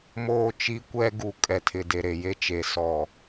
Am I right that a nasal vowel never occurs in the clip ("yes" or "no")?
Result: yes